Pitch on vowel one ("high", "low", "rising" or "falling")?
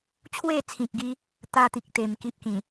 falling